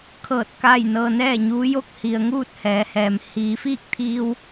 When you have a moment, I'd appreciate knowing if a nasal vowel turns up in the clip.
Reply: no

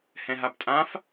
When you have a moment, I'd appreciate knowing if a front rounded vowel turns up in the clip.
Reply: no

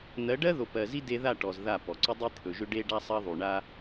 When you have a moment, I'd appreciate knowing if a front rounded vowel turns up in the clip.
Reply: yes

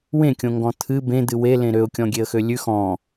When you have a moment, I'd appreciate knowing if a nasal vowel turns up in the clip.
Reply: yes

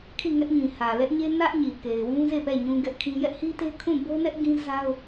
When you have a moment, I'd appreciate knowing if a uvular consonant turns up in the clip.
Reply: no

